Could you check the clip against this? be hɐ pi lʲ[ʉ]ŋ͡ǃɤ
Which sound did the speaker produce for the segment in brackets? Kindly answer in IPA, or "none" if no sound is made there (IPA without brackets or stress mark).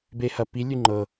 ʉ